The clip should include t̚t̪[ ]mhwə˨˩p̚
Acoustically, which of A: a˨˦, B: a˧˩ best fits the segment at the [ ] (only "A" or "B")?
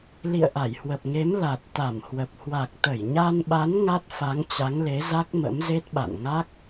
B